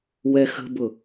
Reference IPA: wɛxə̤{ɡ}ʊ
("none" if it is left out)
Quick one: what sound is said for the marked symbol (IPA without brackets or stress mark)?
b